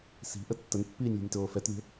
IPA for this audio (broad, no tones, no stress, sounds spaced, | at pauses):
s i̤ ʔ ə tː ə n pː iː nʲ lʲ ə̤ nʲ t oː f ɛ t lʲ o̤